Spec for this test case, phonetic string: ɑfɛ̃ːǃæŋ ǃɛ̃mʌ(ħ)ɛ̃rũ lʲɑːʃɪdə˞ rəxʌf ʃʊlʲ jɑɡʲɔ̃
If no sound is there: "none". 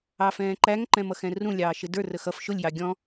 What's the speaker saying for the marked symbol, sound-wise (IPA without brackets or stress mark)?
x